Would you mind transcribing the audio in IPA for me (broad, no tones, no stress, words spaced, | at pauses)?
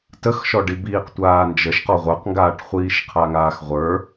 təxʃɔɖ ibiːqtʷaːnd͡ʒəʃ qɔʁʷə˞qŋɡaːʈ χʷiːʃqʰaŋaːxʁʷə˞